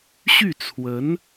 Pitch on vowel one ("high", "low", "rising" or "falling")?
falling